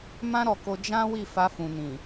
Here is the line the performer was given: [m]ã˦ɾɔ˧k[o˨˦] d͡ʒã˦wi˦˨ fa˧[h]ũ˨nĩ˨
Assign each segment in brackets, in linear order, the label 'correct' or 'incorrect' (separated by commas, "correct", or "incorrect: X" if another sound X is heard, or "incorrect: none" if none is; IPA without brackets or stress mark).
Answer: correct, incorrect: o˧, incorrect: f